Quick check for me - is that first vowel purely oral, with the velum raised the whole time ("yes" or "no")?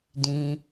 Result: no